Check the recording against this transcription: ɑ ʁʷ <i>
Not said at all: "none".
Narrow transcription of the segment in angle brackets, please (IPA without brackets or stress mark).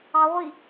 i